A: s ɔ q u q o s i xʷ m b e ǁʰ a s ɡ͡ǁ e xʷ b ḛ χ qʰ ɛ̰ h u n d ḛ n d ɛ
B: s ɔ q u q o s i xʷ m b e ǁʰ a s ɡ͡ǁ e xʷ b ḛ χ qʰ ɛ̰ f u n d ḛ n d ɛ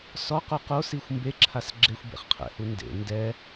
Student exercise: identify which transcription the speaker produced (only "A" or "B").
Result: A